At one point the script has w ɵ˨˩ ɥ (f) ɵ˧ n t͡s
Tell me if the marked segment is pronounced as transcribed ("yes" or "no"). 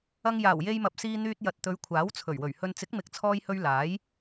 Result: no